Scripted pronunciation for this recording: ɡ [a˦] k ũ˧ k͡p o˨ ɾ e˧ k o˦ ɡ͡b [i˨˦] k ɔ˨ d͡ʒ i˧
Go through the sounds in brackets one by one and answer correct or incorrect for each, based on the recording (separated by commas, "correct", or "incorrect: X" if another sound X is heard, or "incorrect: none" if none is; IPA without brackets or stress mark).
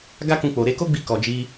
correct, incorrect: i˧